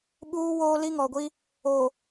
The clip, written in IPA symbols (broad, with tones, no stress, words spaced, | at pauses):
ɓuː˦woː˦ li˦ŋɔ˨ɡʷi˦ | o˨